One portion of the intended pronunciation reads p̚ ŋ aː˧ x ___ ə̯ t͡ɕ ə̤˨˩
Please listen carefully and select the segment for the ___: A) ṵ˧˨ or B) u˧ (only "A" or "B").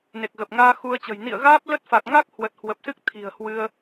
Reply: B